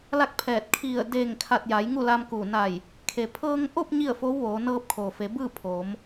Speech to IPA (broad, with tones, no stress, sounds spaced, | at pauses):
l a˥˨ k̚ pʰ ɛː˧˩ t̚ kʰ i˧˩ ə̯ d eː˧˩ ŋ kʰ a˧˩ t̚ j a˩˧ j ŋ u˥˨ l a˧ m k u˧˩ n a˧˩ j | kʰ e˩ pʰ ɤː˧ ŋ ʔ o˥˨ p̚ ɲ i˥˨ ə̯ f o˧˥ w ʋ oː˩˧ n ɤː˧ p̚ kʰ oː˩ f e˩˧ b ɯː˥˨ pʰ oː˩˧ m